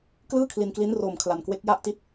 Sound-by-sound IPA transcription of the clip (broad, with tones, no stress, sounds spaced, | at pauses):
k l ɯː˥˩ kʰ l i˧ n k l i˦˥ n r oː˧ m kʰ l a˧ n k w e˦˥ k̚ j a˥˩ ʔ t i˥˩ t̚